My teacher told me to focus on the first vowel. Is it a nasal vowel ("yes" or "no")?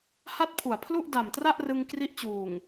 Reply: no